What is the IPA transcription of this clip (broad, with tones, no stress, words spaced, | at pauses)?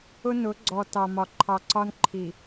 ʊ˦nʊ˨˦ɡ͡ǀɔ˨ tɑ˨mɒ˨ ǃʰɑ˨ǀɒ˦n ǃʰi˨